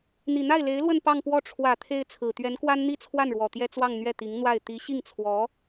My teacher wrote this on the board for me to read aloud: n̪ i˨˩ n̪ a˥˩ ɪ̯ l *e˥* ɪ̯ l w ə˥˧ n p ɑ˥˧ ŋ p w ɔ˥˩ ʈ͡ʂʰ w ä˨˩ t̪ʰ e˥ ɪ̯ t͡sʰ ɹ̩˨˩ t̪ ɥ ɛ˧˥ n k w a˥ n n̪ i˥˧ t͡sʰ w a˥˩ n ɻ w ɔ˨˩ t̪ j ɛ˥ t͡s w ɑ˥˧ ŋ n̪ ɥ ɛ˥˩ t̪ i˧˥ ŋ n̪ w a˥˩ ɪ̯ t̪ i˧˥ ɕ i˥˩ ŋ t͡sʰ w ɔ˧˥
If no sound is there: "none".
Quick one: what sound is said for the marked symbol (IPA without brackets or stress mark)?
e˧˥